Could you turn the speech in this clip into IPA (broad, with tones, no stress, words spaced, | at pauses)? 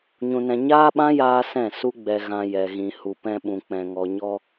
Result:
ɲũ˧nɛ̃˧ ɲaː˦ɓã˦jaː˧ sɛ̃˦˨ su˦ ɡ͡bɛ˧ɣã˧ jɛ˨ɣĩ˨ hu˨pɛ̃˧ɓũ˨ k͡pɛ̃˨ŋɔ˨ɲɔ˧